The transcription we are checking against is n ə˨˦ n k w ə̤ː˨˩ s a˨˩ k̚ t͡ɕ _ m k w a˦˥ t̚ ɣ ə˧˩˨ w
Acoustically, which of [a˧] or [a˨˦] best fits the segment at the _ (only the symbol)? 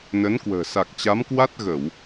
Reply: a˨˦